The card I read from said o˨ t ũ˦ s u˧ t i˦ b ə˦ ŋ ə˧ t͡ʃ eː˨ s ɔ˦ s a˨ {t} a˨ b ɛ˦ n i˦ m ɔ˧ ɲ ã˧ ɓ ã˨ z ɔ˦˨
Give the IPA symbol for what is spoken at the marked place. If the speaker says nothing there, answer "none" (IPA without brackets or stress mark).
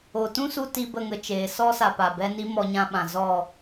p